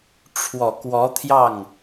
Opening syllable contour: low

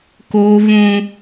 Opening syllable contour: high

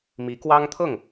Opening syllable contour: rising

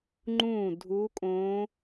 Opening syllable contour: falling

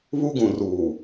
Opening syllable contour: high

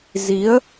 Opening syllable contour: rising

